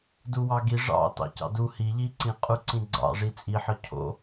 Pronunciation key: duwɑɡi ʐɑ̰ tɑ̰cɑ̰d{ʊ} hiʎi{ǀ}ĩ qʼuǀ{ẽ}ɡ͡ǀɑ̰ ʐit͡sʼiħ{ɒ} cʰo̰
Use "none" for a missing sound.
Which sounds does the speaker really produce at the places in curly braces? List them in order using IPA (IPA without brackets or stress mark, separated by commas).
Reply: u, ǀ, ĩ, ɒ